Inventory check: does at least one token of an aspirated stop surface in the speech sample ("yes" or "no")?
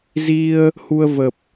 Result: no